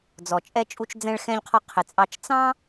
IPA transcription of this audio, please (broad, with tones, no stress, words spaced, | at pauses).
d͡zɔ˩ t͡ʃʼɛ˧t͡ʃʼu˧t͡ʃ d͡zɛ̃˧ɭ xɛ̃˧ʎqʰɔ˧ qʰɪ˩t͡sʼɑ˧t͡ʃ t͡sɑ̃˥